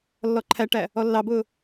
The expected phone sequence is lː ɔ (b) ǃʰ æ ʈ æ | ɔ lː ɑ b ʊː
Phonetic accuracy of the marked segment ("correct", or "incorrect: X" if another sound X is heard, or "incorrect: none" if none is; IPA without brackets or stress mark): incorrect: none